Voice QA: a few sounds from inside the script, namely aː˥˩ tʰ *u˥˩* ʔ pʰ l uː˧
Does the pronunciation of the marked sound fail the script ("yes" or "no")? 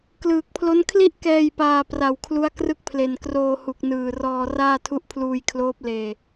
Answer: yes